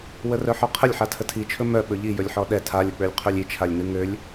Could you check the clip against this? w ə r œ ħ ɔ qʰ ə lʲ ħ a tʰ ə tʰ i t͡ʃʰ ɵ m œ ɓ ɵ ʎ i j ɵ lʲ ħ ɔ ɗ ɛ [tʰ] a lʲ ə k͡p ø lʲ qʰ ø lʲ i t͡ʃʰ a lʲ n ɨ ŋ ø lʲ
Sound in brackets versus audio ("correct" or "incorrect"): correct